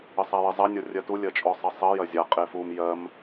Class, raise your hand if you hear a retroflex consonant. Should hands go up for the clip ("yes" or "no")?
no